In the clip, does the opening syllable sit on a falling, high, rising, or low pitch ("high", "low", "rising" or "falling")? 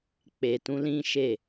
low